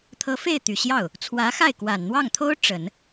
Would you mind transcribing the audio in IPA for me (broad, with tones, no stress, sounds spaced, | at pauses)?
t̪ʰ ɤ˧˥ f e˥˩ ɪ̯ t̪ y˨˩ ɕ j ɑ˥˩ ʊ̯ | t͡sʰ w ä˧˥ x a˥˩ ɪ̯ k w a˨˩ n n̪ w ɑ˥˩ ŋ t̪ʰ o˥ ʊ̯ ʈ͡ʂ ə˨˩˦ n